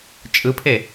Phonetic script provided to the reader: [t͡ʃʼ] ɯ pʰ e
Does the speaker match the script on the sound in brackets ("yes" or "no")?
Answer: yes